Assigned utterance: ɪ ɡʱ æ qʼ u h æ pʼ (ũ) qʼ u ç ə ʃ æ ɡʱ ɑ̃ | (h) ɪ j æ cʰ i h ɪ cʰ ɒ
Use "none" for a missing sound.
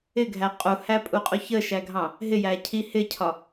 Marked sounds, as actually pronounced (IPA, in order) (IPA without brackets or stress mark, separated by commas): u, ɦ